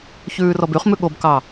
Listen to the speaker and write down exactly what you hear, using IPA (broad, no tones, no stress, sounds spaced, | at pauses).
ç ʉː r ɔ b y χ m ʉ ɠ o b k ɑ